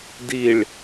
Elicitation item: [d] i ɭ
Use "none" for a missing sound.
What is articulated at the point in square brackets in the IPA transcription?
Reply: d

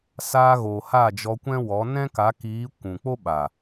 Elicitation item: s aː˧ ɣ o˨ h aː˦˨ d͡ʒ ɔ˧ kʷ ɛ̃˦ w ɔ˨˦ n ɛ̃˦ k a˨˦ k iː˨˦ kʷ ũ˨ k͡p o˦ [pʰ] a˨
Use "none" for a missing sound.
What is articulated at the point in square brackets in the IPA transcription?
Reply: ɓ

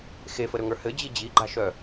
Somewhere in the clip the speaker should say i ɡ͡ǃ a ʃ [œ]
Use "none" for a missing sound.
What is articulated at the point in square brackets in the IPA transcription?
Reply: œ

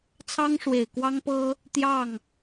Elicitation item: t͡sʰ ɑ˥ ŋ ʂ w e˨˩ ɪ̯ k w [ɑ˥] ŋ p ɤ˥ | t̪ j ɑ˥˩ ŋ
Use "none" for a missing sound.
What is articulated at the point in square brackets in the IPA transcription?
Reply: ɑ˥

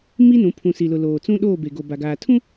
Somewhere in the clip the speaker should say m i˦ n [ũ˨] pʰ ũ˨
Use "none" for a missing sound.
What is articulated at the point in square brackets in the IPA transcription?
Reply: ũ˨˦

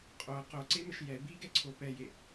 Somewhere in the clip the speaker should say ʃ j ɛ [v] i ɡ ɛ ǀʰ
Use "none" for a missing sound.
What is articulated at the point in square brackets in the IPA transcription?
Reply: b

